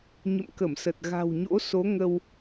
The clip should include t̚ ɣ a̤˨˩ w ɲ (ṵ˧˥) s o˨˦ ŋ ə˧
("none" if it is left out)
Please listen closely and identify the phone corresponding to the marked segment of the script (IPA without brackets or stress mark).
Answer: o̰˧˥